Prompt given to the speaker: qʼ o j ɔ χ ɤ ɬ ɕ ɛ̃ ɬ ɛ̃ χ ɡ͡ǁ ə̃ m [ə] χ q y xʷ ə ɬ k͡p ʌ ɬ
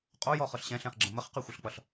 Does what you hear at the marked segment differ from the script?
no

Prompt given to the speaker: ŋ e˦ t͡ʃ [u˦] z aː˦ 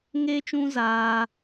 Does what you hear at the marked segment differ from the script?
yes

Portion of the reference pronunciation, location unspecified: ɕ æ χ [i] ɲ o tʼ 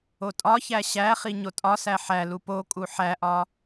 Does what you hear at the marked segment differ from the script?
no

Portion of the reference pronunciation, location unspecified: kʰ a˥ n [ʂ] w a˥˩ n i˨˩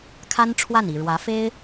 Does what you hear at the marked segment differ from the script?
yes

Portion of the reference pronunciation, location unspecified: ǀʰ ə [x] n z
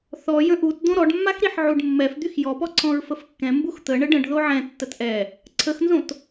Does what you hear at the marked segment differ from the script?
no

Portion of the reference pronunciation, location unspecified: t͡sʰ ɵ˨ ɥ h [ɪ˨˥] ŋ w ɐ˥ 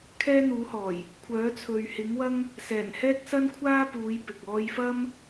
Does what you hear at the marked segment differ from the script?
no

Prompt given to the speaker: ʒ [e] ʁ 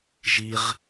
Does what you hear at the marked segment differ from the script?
yes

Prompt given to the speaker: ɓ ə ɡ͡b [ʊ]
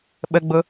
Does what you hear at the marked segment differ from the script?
no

